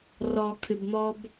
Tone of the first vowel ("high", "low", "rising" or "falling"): low